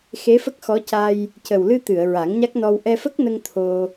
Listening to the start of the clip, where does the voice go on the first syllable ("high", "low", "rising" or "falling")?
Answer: rising